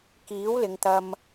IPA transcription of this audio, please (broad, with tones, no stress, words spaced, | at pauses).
kiː˨˥wlɪ˨˧ŋt̪ɐ˧m